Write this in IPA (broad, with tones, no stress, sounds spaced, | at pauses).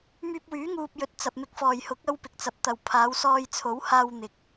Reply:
m yː˧ p̚ w yː˨˥ ŋ uː˨ p̚ j ɵ˨ t̚ t͡s ɐ˨ p̚ m ɪ˨ k̚ f ɔː˨˩ j h ʊ˨˥ k̚ ɐ˥ w p ɪ˨ k̚ t͡s ɐ˨˥ p̚ t̪ ɐ˨˩ w pʰ aː˨˧ w s ɔː˧ j t͡sʰ o˨˥ w h aː˧ w n̪ ɪ˨˥ k̚